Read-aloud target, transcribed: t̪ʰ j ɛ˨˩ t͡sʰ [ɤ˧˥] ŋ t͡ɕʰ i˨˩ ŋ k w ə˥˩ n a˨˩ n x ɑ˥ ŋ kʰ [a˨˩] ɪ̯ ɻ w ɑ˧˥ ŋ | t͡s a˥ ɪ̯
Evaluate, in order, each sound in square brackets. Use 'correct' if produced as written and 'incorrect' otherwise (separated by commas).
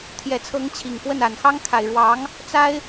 correct, correct